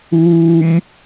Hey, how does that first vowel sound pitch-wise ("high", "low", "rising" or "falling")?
high